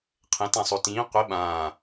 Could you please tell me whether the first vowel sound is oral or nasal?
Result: nasal